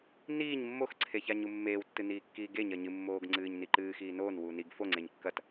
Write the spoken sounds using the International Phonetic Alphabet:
niːɲ mːoxǀʰe çaɲumːeːwtːɨ niːkːiːɡeɲɐ ɲɨmːoːɡ ŋ͡ǀɨːɲniǃɨːxiː noːnwuː niɡ foŋ͡ǀeɲ kːɐt

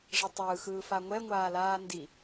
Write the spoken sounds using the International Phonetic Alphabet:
ʐʌtˤɯːxɯː faŋʷɛŋʷaː laːndi

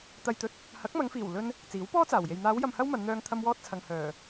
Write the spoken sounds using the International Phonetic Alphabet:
t̪ɐ˨jt̪ɵ˨t̚ | hɐ˨˥k̚mɐ˨˧ŋfiː˨˩w lɵ˧n | t͡siː˨˥wpɔː˥t͡saː˨˩wje˨j n̪aː˨˧wjɐ˨m hɐ˥wmɐ˨˧nn̪œː˧ŋ t̪ʰɐ˧mwɔː˧t̚ t͡sʰɐ˨ŋhœː˨˩

